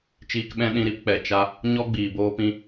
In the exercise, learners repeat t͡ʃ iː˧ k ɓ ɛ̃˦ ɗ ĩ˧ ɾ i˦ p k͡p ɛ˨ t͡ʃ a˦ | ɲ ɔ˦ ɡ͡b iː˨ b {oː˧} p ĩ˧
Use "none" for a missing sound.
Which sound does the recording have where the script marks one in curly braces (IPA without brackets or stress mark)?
oː˧